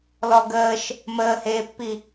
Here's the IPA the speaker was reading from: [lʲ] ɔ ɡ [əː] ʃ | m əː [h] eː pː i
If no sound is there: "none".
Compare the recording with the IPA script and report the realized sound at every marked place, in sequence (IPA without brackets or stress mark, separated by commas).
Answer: l, əː, h